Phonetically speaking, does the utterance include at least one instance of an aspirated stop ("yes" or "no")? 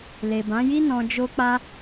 no